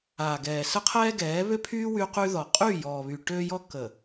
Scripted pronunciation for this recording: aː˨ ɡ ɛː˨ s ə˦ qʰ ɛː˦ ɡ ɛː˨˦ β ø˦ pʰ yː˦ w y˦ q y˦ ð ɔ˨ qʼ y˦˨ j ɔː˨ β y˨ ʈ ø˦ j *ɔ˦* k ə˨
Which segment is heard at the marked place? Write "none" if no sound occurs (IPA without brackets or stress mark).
ɔ˦